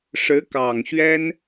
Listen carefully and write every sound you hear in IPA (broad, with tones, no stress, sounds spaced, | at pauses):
ʂ ɻ̩˧˥ k ɑ˨˩ ŋ ɕ ɥ ɛ˥ n